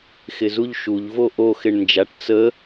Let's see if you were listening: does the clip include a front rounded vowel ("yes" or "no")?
no